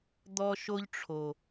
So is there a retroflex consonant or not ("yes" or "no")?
yes